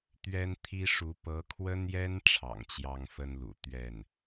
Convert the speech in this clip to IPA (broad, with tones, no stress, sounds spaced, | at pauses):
t̪ ɥ ɛ˥ n t̪ʰ i˥ ʂ u˧˥ p ɤ˧˥ kʰ w ə˥ n j ɛ˥ n ʈ͡ʂʰ ɑ̰˨˩ ŋ t͡ɕ j ɑ˥ ŋ f ə˥ n l ṵ˨˩ t̪ ɥ ɛ˥˩ n